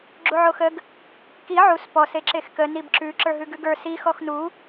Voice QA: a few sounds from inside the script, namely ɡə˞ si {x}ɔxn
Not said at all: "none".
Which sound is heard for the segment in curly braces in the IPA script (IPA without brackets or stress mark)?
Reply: x